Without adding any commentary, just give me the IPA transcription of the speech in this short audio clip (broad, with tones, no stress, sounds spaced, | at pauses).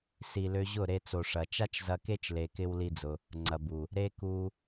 s i˨ l ø˧ ʑ ʊ˦˨ ɾ e˧ t͡s o˨ ʂ ɐ˨ t͡ʃ a˦ t͡ʃ z ɐ˧ k e˦ t͡ʃ l e˧ k ɪ˦ w l i˦ d͡z ʊ˧ | ŋ͡ǀ ɐ˨ b u˨ | ɾ e˦ k u˧